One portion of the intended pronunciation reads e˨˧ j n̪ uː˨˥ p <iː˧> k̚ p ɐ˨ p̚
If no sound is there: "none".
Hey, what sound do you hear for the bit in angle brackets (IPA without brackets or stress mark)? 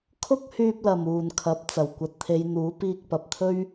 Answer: iː˧